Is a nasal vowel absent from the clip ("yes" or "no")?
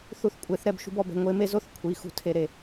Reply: yes